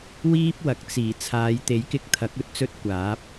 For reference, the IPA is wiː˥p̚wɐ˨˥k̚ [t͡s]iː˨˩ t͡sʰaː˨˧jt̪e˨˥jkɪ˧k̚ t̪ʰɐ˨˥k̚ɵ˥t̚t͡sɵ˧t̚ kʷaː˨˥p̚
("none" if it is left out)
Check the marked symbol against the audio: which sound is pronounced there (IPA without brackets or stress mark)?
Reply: t͡s